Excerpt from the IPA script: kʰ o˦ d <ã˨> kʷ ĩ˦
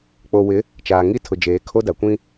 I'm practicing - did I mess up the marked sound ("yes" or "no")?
yes